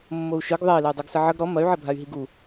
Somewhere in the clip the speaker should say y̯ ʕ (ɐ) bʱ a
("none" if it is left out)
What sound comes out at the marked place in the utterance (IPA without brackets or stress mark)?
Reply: ɐ